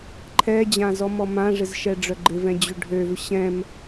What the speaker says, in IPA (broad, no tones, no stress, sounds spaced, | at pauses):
ǃʰ ɛ d͡ʑ ã z ɔ m ɔ m ã ʐ ɪ z ʃ ɛ ɖ͡ʐ œ ɡ͡ǃ ɪ v ɛ̃ d͡ʑ ø ɖʱ ø v ɕ ɛ̃ m